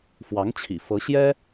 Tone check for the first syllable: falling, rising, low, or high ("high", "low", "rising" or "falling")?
rising